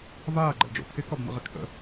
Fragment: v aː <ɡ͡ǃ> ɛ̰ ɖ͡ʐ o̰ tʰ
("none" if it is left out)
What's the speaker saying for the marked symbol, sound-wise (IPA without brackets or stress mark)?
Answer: ɡ͡ǃ